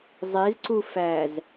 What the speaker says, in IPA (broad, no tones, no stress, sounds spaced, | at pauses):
zˤ e z ǀ u f æ z